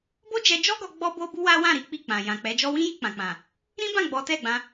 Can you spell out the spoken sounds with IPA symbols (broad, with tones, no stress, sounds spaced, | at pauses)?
b o˦ d͡ʒ ɛ˧ d͡ʒ ɔ˦ ɡ ɔ˧ ɡ͡b ɔ˦ b o˦ b u˦ w a˦ w ã˦˨ ɾ i˨˦ k͡p i˦˨ k͡p ã˨ j ã˨ k͡p ɛ˨˦ d͡ʒ ɔ˦ w ĩ˦ j i˧ k͡p ã˨ k͡p ã˨ | ɾ ĩ˦ b ã˦˨ ɡ͡b ɔ˨˦ t ɛ˦˨ ɡ͡b ã˧